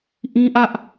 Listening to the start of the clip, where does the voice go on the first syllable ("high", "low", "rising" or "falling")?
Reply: high